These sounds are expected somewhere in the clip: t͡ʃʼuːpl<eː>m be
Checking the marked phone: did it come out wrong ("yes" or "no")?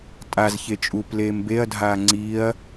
no